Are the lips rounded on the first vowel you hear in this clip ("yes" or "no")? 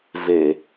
no